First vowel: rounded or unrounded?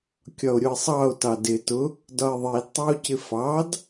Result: rounded